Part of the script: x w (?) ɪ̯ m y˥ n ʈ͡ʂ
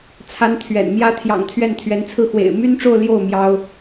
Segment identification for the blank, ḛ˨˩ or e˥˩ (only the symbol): ḛ˨˩